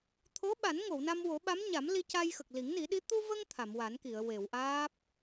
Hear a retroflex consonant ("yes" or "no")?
no